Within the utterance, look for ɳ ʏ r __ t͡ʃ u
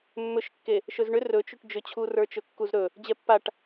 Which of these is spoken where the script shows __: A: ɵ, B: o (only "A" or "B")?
A